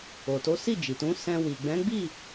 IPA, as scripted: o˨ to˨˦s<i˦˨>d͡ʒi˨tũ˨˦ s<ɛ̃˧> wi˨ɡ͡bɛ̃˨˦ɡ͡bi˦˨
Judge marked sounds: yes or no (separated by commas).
yes, yes